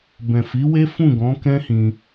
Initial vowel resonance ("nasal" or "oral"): nasal